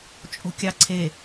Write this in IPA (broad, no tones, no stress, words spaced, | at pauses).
t͡ʃʼo̤kʲɑǀʰe